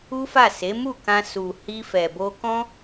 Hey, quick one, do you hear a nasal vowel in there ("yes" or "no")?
yes